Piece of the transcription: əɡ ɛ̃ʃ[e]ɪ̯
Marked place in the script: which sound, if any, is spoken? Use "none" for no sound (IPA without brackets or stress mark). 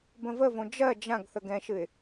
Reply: ɨ